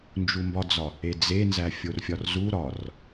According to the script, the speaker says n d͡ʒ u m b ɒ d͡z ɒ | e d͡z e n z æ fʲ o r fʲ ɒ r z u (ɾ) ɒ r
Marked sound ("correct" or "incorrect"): correct